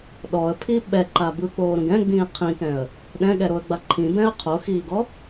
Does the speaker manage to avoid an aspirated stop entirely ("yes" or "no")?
no